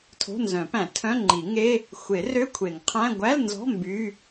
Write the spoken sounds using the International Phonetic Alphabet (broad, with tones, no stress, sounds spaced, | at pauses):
tʰ o̤˧˥˧ n z œ̃˨˩˦ p æ̃˨˩˦ tʰ œ̃˧˥˧ ŋ͡ǃ i˨˩˦ ŋ e˧˥˧ | xʷ e˨˩˦ r ø˧˥˧ kʷʰ e˨˩˦ ŋ qʰ æ̃˧˥˧ ɡʷ æ˧˥˧ l n z ɔ̤˧˥˧ m b y˧˥˧